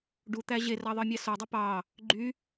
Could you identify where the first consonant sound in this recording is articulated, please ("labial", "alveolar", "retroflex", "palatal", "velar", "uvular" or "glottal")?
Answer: retroflex